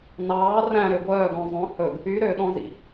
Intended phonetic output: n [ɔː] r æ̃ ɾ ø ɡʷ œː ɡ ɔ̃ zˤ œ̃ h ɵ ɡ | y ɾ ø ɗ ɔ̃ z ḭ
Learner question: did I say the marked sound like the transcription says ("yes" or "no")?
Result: no